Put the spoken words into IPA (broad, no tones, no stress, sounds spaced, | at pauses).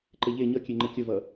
ǃ e ʎ e ɲ ʌ kʲ e ŋ͡ǃ ə kʲ ə v ʌ